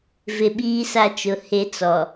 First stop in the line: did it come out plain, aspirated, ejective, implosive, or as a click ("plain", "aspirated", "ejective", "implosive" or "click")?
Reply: implosive